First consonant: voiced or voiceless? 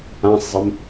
voiceless